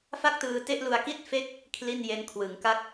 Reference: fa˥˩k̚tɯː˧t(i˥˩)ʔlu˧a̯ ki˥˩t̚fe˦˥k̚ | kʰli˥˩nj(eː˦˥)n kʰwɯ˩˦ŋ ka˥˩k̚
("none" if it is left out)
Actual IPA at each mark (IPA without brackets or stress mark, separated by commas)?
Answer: e˥˩, e˦˥